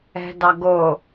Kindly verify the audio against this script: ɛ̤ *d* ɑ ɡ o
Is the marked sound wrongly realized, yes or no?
no